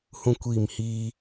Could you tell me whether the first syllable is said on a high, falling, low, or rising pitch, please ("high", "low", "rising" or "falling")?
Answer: high